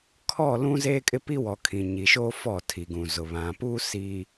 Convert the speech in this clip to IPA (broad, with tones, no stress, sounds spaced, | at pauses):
kʰ ɔ˦˨ l ũ˦ z eː˦ kʼ ɪ˦ p i˦ w ɔ˨ kʰ ĩ˨ ɲ i˨ ʃ oː˦ f ɔ˦˨ tʰ i˨ ɡ ũ˨ z ʊ˨ β ã˨ p uː˦ s i˨